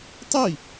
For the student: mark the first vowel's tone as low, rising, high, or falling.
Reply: falling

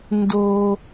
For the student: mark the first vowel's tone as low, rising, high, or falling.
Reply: high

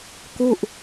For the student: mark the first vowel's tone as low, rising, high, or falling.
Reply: falling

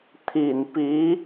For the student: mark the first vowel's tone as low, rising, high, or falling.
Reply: low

